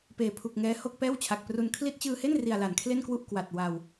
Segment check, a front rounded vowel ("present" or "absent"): absent